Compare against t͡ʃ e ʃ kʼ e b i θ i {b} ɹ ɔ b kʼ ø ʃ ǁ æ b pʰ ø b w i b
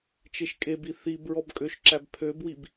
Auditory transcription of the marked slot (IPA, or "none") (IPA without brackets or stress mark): b